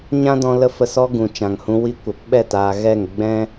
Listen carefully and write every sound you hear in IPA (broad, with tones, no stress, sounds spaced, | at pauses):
ɲ ã˦ d ɔ̃˧ l ə˦ f ə˧ s ɔ˦ ɡ ũ˨ t͡ʃ ã˨ ŋ h ũ˧ w i˧ kʷ ə˨ p ɓ ɛ˦˨ t aː˨ ɣ ɛ˦˨ ŋ ɡ͡b ɛ̃˦